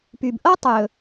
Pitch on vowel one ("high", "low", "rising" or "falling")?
low